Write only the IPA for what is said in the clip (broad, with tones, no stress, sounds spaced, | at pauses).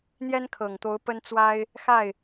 n̪ j ɛ˥ n kʰ ɤ˨˩ ŋ t̪ o˧˥ ʊ̯ p ə˥ n t͡s w a˥ ɪ̯ | x a˥˩ ɪ̯